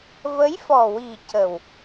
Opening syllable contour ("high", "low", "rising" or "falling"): rising